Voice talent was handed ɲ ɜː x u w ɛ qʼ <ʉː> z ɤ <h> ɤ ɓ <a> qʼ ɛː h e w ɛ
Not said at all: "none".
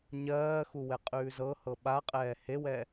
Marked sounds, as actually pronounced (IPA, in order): ʉː, h, a

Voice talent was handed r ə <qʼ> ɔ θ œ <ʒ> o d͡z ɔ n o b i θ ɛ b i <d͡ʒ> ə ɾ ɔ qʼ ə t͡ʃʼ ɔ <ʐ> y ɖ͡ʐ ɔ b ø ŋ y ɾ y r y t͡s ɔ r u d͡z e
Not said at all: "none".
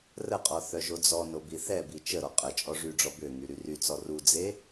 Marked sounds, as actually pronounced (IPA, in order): qʼ, ʒ, t͡ʃ, ʐ

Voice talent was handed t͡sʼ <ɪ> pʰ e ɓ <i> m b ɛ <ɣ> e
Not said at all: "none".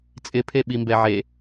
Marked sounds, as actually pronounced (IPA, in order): ɪ, i, ʕ

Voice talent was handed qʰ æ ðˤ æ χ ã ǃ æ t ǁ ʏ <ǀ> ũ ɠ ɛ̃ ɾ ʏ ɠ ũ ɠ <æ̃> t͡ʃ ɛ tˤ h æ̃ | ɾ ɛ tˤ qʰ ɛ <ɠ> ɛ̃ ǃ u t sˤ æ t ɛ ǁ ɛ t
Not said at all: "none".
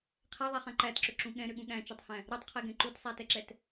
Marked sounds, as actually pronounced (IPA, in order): ǁ, æ̃, ɡ

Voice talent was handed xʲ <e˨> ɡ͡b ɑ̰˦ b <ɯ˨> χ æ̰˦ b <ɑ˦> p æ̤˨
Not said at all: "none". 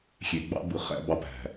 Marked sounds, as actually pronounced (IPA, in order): e˨, ɯ˨, ɑ˦

